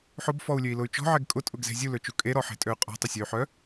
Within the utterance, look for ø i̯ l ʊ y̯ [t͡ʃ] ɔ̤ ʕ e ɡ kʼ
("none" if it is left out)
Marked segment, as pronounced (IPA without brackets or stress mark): t͡ʃ